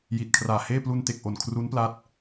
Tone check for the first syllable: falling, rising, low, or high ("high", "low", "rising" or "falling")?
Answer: low